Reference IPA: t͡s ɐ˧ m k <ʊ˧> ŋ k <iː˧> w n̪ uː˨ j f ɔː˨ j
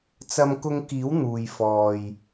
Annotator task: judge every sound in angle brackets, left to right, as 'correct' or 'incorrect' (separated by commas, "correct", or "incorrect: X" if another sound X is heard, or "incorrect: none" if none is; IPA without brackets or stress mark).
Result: correct, incorrect: iː˨˥